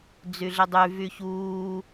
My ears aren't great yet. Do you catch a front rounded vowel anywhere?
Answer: yes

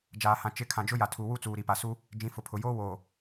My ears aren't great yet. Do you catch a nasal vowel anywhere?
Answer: yes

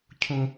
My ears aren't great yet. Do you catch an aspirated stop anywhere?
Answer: yes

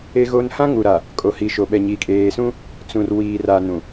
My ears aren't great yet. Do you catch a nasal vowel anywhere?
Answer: yes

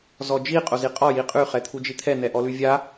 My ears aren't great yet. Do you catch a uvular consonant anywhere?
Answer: yes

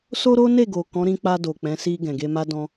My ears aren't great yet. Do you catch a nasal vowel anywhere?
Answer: yes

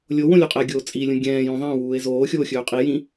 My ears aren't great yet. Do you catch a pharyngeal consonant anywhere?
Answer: no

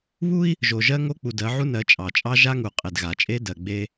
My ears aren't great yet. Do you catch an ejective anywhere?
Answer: yes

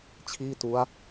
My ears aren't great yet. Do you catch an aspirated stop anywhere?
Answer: yes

